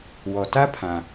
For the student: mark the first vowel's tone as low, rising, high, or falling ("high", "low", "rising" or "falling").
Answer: low